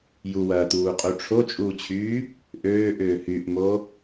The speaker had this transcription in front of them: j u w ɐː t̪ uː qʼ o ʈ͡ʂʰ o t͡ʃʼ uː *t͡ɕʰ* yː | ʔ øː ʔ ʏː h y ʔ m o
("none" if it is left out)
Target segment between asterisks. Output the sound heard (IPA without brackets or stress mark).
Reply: t͡ɕʰ